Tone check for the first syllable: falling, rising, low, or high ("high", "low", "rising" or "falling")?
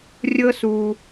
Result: high